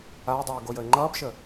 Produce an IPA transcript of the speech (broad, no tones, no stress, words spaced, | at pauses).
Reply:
aɪ̯dˤuː ɡojəɪ̯ŋ͡ǃʌːbʃə